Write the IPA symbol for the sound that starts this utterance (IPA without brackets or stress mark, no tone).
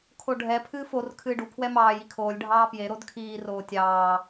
kʰ